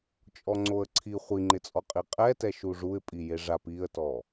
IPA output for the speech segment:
t͡ʃʼ ɔ ŋ͡ǀ o ə̯ ǀʰ i χʷ i ŋ͡ǃ ɪ t͡sʼ ɔ qʼ i qʼ ɛ t ɛ ʃ u ʐ u ɪ̯ pʼ i j e ʐ a p i ə̯ t ɔ

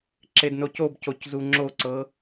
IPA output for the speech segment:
ǁ e d n o c o b c o c z u ŋ͡ǁ o ǀ ɤ

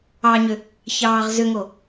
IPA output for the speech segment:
ɑ ɲ ʏ | ç ɑː ʁ z ʏ ŋ o

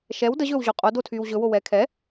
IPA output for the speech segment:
ʃ ɛ w d ə ʑ ɵː w ʑ o qʼ o d o tʰ yː w ʑ ɵ w o w ɛː kʰ ɛ

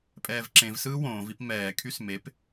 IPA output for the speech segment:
pʼ ɛː v ǁ ẽ v s ɯː w õː v i p m ɛː kʰ y s m e p

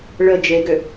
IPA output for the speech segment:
ɭ ə d͡ʒ e ɡ ø

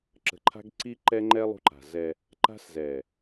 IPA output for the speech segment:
ǁ ə̤˨ ǃʰ a̤˦ ɡ ǀ i˦ ǃ ɛ˦ ŋ͡ǃ ɛ˦ lˠ ṳ˦ ǃ a̤˨ z ɛ˦ | ǃ a̤˦ s z ɛ˨

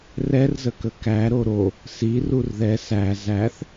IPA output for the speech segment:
r ɛ r z ə k ə k æ ɾ o ɾ o | s i r u r ð ɛ s æ z æ θ

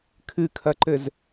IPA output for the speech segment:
kʰ ɨ kʰ ɐ ǃ ɘ z

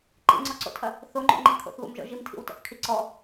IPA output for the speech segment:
ǃ ḭ ŋ͡ǀ ɔ ǀ o̰ tʰ ɐ | θ o ŋ͡ǃ o̰ ŋ͡ǃ i kʰ o̰ θ β o̰ m ʒ ɔ̰ ʒ i m tʰ ḭ w t ɔ̰ θ kʰ i ǀ ɔ

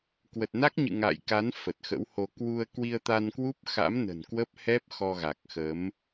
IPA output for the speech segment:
k w ə˨˩ t̚ n a˦˥ k̚ ɲ ɨ̰˧˨ ŋ a̰˧˨ j k a˨˦ n f ə˨˩ t̚ x ə̰˧˥ w h o˧ k w u˧ ə̯ k w i˧ ə̯ t̪ a˧ n k w u˦˥ p̚ x a̰˧˥ m n ə̤˨˩ n k w ə˦˥ p̚ h ɛ˦˥ p̚ x ɔ˧ ɣ a˨˩ k̚ x ə˨˦ m

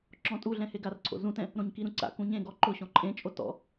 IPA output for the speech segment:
ǁ ɔ̃ tʼ u ɮ ɛ̃ h e ɡ a r ǀʰ o̰ z ũ t ɛ̃ | ɾ õ ɲ k i ɾ ũ ǀ a̰ k ũ ɲ ẽ ɡ ɔ ǃ ʊ ɕ ɔ̃ ǃʼ ẽ t͡ʃʼ o t ɔ̰

